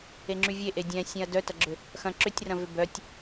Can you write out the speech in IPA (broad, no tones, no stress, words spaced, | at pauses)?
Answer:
eŋ͡ǁyvʲe ʔedʲɛ̃ sʲɛ̃ɐ̯dœtɐɡ͡ǁʏ | xɐ̃ ǁʏtʲrɐ̃vʏ bœtʲ